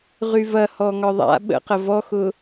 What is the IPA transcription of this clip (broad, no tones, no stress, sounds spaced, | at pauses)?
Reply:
ʁ y v ɐ h ɔ ŋ ɒ ðˤ a̰ ɓ ə̰ q ə v ɔ x ʊ